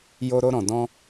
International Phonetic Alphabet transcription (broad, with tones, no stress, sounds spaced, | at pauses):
j o˧ ɾ o˧ ɾ ɔ̃˨ d ɔ̃˧